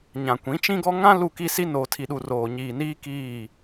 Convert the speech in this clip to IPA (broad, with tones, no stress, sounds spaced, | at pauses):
ɲ ã˨ kʷ ĩ˨˦ t͡ʃ ĩ˦ ɡ ɔ˦ ŋ ã˦ l u˦˨ k i˦ s i˦ n oː˨ tʰ i˨ ɗ u˨ r oː˨ ɲ iː˨ n iː˦ k iː˦˨